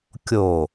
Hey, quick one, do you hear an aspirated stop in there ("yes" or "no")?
no